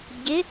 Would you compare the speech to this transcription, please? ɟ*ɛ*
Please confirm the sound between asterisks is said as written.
no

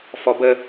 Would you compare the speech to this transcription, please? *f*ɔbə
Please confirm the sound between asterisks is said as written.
yes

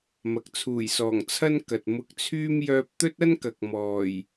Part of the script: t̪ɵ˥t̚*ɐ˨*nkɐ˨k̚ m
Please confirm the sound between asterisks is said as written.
no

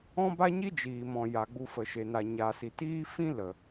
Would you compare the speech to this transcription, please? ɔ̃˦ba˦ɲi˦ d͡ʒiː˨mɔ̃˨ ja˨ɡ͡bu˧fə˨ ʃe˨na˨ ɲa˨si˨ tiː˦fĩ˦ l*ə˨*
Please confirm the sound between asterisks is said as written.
yes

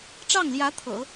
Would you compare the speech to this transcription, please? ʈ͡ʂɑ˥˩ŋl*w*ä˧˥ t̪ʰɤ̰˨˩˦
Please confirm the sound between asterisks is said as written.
no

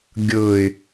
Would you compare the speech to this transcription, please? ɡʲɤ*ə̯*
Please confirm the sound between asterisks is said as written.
no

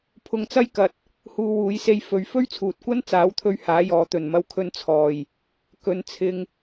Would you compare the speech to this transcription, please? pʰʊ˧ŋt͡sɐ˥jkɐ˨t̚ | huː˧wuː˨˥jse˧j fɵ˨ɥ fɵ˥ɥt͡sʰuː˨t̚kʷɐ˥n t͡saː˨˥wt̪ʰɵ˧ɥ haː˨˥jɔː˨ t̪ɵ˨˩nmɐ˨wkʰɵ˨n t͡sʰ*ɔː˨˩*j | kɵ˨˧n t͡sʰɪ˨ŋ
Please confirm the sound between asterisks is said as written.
yes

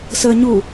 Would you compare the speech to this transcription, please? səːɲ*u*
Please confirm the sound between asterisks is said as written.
yes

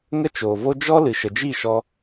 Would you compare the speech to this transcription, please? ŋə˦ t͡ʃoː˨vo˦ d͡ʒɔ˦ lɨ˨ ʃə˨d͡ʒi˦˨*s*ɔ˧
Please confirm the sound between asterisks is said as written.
no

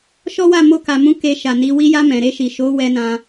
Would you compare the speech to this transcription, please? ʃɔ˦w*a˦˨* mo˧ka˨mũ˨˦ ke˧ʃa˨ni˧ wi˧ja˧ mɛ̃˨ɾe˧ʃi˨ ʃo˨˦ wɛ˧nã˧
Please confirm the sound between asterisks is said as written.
yes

